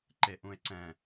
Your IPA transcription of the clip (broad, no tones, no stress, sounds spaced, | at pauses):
ǃ e ʔ ũ e̯ ǀ ɛ̃